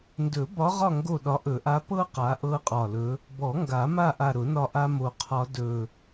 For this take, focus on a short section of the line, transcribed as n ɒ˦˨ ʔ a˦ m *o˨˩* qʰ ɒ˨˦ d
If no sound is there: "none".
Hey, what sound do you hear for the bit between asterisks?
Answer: o˨˩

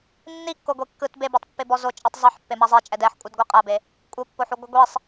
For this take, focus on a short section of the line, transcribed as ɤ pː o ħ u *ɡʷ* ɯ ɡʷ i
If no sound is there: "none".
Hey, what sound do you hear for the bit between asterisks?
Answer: ɡʷ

